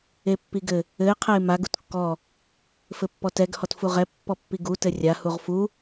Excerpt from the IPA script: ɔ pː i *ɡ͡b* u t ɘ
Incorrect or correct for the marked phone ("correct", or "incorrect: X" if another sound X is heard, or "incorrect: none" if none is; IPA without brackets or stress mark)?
incorrect: ɡ